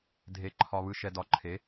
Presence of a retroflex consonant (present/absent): absent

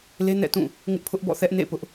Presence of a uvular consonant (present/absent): absent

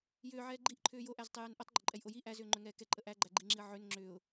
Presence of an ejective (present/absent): present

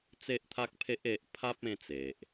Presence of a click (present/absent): absent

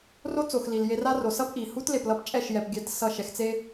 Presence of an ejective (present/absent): present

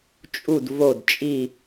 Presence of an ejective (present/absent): present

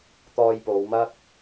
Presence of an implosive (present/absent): absent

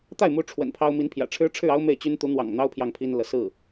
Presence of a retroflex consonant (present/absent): present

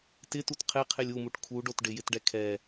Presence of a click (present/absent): absent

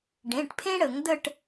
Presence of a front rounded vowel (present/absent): absent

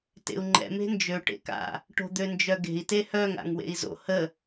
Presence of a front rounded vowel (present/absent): present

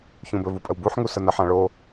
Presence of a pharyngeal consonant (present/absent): present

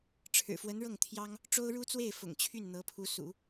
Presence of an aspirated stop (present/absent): present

